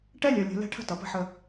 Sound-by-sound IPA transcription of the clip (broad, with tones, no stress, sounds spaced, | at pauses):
ʈ ɛ˦ lʲ œ˨ lʲ ə̤˨ l ɛ̤˦ ʈʰ ə̤˦ t ʌ˨ p ə̤˦ ħ ə˦